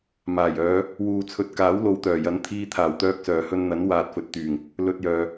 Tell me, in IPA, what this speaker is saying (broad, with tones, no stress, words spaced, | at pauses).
maː˨˩jœː˨˧ | wuː˨t͡sʰɵ˨˥t̚kaː˨˥w lo˨˧wt̪œː˨˩jɐ˨˥nt̪ʰiː˧ t̪ʰaː˨˩wt̪œː˧k̚sœː˨˩ hɵ˧nn̪ɐ˨˥n waː˨t̚fɵ˨˥t̚t̪yː˨˩ŋ | lɵ˧t̚jœː˨